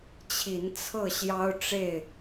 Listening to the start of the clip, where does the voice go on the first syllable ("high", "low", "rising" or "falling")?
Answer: rising